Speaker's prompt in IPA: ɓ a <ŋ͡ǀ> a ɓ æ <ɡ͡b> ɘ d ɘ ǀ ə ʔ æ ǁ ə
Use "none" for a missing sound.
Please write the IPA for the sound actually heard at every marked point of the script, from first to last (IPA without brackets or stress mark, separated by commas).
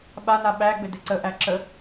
n, ɡ͡b